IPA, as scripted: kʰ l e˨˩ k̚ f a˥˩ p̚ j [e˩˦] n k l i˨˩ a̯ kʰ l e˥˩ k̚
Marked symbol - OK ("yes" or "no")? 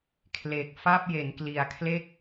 yes